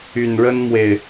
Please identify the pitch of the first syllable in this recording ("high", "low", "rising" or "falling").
low